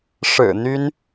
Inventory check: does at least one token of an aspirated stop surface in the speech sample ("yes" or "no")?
no